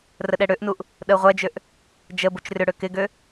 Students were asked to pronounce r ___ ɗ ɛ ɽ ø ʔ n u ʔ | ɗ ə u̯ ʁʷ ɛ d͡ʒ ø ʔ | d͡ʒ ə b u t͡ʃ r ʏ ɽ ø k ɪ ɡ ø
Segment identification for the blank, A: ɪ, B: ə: B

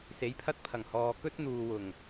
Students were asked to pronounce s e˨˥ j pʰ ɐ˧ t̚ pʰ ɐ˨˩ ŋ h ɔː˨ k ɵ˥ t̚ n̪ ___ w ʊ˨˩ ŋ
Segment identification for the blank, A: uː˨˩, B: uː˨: B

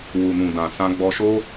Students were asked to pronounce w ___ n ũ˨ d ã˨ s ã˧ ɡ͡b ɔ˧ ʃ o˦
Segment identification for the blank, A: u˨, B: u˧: A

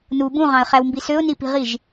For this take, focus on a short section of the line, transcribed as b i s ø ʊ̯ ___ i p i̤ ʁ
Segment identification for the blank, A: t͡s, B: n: B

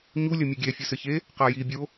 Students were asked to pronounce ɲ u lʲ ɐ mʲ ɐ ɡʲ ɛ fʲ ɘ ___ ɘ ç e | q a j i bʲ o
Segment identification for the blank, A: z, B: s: B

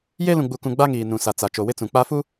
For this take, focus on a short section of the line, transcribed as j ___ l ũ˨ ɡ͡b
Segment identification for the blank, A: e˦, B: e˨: A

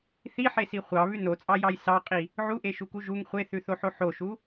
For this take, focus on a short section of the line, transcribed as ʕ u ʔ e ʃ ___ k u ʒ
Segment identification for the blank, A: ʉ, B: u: B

